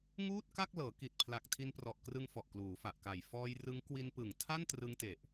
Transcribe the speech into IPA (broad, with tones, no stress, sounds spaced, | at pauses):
ŋ uː˥˩ t̚ k a˥˩ k̚ l ɤː˩˦ k i˨˩ t̚ pʰ l a˨˩ k̚ tʰ i˧ n p r ɔ˨˩ ʔ k r ɯ˧ ŋ f ɔ˨˩ ʔ k l uː˩˦ f a˨˩ ʔ k a˨˩ j f ɔː˧ j r ɯ˦˥ ŋ k w i˧ n p ɯ˨˩ ŋ tʰ a˥˩ n t r ɯ˧ ŋ t e˨˩ ʔ